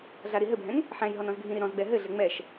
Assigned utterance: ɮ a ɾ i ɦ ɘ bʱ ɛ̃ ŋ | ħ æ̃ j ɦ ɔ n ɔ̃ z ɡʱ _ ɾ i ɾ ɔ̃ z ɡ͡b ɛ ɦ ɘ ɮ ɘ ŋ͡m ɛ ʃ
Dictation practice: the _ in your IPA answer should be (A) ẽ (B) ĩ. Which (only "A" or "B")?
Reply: B